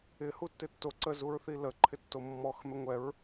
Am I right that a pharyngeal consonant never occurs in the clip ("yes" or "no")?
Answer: yes